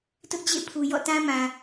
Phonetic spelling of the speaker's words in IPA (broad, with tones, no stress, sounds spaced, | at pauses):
t ʊ˦ ʔ d͡ʑ ḛ˦˨ pʰ u˨ j ɔ̰˦˨ t ã˦ m ã˨